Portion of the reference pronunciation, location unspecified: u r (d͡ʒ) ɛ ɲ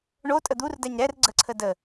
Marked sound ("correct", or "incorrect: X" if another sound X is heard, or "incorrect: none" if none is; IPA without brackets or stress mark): incorrect: d